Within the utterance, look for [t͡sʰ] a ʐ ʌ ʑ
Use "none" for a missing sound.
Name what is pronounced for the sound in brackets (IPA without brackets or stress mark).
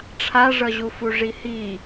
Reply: ʈ͡ʂʰ